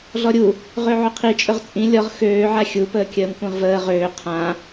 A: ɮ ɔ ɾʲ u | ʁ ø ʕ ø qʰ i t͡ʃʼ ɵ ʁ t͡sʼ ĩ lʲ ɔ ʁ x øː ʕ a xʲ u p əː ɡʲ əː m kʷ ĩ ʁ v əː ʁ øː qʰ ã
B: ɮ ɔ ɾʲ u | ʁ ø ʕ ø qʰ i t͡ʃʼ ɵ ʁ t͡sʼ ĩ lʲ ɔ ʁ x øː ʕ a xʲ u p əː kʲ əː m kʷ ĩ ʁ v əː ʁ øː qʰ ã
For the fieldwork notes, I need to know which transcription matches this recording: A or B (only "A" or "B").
B